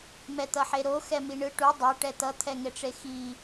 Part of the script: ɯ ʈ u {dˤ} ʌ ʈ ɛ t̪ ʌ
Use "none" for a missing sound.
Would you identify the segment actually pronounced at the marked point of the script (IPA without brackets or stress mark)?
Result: dˤ